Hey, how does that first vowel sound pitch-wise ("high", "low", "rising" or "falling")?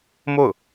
falling